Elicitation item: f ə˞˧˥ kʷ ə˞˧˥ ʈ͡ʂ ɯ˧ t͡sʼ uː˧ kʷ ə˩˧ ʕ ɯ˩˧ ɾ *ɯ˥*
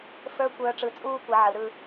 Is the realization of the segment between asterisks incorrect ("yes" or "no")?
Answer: yes